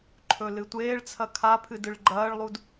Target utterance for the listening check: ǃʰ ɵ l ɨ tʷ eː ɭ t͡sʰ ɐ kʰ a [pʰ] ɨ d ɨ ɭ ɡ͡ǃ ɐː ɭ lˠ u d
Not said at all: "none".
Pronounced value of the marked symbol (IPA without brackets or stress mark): pʰ